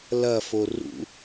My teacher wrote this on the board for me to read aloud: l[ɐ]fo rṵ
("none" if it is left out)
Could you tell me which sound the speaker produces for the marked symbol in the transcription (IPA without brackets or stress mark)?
ɐ